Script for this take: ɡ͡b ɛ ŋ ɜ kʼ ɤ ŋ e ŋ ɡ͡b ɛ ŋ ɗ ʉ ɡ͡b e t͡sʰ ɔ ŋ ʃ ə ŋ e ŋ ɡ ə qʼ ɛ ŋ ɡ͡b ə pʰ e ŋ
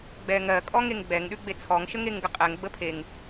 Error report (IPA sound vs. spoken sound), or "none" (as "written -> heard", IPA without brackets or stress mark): ɤ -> ɔ